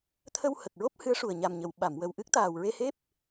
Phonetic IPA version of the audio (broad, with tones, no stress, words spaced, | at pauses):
t̪ʰə˧whə˨˩k̚ɹo˦˥p̚ hɨ˧˥ə̯ʂu˨˩ə̯ ɲa˨˩mɲə˨˩˨w ɓa˨˩˨mwə˨˩w ʔɨ˦˥k̚t̪aː˨˩wɹe˧he˦˥p̚